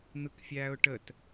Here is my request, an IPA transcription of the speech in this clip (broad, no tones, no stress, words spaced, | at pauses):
n̪ɯkfʲæːʊ̯ʈət